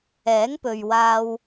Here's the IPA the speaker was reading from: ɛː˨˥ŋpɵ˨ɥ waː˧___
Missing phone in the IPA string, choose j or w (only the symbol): w